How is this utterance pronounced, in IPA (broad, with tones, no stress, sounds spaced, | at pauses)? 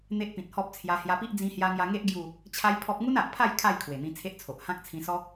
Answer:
n̪ e˦ ʔ p ĩ˨ t̚ h ɔ˦ p̚ t͡sʰ j a˧ h j a˧ p i˦ ʔ d͡z ĩ˧ h j a˧ ŋ j a˧ ŋ e˦ ʔ ɡ j u˥˧ | t͡ɕʰ a˦ j pʰ ɔ˦ p̚ ŋ u˦ n a˨ ʔ pʰ a˥˧ j kʰ a˥˧ j kʰ w e˨˩ n̪ ĩ˧ t͡sʰ e˦ ʔ t͡sʰ o˨ ʔ h ã˦ k̚ t͡sʰ ĩ˧ s ɔ˦